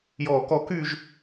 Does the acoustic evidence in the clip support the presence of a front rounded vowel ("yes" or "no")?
yes